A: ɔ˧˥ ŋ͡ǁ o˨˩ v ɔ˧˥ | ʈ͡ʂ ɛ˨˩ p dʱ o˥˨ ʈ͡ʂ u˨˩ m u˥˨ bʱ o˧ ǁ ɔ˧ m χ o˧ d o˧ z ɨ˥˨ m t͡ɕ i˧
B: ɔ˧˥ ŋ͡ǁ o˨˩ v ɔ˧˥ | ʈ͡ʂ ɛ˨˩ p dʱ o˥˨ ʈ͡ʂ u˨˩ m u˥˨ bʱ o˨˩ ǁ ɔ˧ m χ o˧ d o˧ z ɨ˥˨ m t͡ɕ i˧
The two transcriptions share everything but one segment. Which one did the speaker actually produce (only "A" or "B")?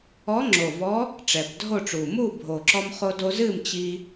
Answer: B